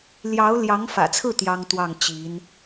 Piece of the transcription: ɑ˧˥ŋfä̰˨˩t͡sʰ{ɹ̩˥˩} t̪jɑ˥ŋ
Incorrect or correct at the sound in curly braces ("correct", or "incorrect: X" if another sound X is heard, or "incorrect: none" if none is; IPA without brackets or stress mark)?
correct